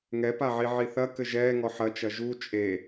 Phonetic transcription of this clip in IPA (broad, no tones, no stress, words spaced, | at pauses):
ŋɛpaʕi ʕiθɐ kɘʒɛːŋɔ ħɐt͡ʃɐ ʒu t͡ʃʼe